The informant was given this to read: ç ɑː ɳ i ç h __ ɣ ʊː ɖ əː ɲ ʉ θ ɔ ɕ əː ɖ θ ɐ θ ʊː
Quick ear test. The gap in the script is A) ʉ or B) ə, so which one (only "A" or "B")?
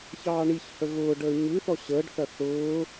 B